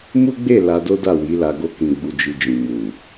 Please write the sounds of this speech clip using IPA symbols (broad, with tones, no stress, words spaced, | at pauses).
mu˦ɡ͡be˦˨ la˧do˦da˦˨ wi˨˦la˧ ɡo˧kĩ˨ ɡ͡bu˧d͡ʒi˧d͡ʒĩ˨ mu˨